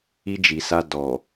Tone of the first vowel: high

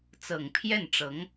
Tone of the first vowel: low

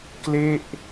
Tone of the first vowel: falling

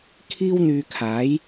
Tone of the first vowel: high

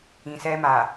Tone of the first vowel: low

